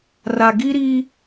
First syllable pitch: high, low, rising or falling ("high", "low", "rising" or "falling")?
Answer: low